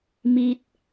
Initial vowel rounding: unrounded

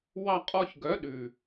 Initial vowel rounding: unrounded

